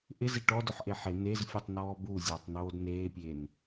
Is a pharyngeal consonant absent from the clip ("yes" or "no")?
no